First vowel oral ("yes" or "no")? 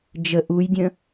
yes